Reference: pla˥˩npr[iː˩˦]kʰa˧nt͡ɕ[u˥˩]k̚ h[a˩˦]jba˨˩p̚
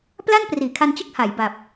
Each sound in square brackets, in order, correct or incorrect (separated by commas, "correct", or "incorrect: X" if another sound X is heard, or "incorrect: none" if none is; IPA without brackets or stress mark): correct, incorrect: ɯ˥˩, correct